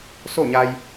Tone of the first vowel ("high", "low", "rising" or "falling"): falling